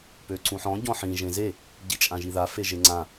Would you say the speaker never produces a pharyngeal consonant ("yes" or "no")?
no